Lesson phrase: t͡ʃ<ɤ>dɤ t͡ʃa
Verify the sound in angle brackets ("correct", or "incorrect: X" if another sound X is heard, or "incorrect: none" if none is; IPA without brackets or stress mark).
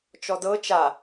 incorrect: ɔ